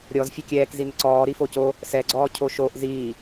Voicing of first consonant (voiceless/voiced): voiced